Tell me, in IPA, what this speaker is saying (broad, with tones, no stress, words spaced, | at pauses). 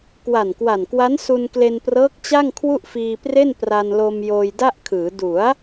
kwa˨˩nkwa˨˩n kwa˦˥n su˧nkle˧nprɤː˦˥k̚ t͡ɕa˥˩ŋkʰwu˥˩ʔfiː˧pre˥˩n pra˧nlo˧m joː˧jda˥˩ʔkʰɯː˩˦ du˩˦a̯